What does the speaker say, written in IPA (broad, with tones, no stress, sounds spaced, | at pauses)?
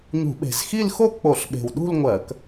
ɲ ṳ˧˩˧ ɓ e̤˨˩ z x i˥˧ l x o˥˧ k͡p o˧˩˧ ɬ ɓ e̤˨˩ w ɗ ṳ˥˧ l ŋʷ ɜ˧˩˧ k